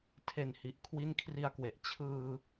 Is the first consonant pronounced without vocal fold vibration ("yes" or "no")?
yes